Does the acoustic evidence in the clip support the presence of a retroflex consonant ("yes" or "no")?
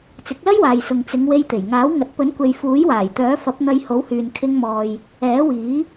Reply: no